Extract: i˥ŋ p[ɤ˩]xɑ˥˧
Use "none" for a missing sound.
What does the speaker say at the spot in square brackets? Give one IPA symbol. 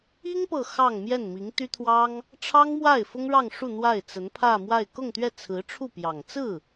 ɤ˥˧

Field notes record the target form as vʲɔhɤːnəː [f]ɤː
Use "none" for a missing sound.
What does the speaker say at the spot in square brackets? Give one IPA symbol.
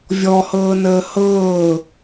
h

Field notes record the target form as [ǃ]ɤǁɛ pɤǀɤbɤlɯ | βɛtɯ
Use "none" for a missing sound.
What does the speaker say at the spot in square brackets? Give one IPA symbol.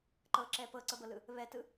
ǃ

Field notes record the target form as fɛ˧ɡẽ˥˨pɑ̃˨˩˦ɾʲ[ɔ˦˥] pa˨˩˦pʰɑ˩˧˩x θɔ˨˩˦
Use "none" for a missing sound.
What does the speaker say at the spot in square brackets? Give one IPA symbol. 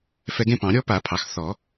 ɔ˦˥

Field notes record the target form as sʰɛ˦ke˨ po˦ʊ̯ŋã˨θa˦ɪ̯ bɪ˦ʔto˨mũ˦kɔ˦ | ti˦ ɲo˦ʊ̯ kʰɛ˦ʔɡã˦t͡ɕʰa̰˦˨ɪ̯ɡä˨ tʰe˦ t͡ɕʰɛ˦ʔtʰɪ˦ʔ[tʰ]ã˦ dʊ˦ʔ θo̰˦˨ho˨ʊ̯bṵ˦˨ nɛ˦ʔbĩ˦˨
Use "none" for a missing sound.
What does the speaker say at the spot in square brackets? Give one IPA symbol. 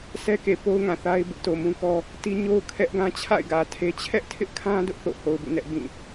kʰ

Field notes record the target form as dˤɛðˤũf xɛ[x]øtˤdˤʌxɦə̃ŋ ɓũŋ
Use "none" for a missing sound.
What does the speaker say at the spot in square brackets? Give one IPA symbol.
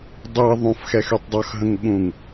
x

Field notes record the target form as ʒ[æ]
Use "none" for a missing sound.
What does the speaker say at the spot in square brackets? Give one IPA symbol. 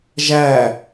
æ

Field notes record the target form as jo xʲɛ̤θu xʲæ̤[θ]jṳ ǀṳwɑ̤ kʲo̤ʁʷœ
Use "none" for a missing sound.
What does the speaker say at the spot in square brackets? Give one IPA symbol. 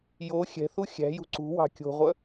none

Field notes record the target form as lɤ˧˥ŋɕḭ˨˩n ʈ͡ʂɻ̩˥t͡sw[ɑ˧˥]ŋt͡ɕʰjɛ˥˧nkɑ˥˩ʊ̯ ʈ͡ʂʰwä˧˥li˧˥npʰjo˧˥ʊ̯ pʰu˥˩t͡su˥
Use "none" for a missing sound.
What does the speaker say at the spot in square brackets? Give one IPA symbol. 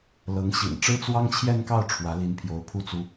ɑ˥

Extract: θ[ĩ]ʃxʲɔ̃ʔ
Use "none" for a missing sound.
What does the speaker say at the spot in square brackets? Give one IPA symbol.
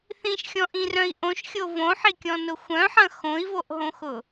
ĩ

